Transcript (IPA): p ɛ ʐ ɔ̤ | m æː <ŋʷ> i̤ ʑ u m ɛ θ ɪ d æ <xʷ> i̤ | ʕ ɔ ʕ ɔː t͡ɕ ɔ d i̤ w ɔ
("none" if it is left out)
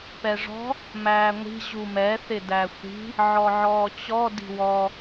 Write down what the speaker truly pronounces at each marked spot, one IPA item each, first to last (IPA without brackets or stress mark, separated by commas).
ŋʷ, xʷ